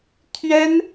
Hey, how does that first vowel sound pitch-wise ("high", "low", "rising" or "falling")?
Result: high